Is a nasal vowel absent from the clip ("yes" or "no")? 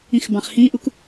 no